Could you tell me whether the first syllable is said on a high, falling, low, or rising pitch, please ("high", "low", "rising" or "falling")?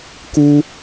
high